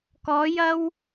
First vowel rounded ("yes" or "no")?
yes